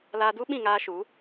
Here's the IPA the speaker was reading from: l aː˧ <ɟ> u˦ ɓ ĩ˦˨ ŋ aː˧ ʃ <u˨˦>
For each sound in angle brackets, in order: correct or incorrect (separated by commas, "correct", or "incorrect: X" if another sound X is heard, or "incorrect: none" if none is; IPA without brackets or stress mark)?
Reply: incorrect: d, correct